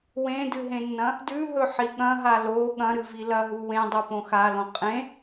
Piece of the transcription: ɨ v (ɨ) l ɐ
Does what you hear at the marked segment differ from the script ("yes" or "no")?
yes